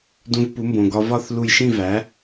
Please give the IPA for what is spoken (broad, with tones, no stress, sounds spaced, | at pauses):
d ũ˧ v p u˩˥ m b õ˩ ɡ ɒ˧ v ɒ˥˨ θ l u˧˩ j ʃ ĩ˥˨ v æ˩˥